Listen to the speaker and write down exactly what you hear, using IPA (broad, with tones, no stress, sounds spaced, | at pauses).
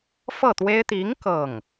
f ɤ˥˩ t̪ w e˥ ɪ̯ t̪ i˧˥ ŋ k ɤ˥˩ ŋ